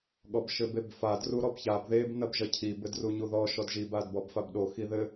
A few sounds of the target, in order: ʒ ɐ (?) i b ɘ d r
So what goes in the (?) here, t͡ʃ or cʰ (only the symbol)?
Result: cʰ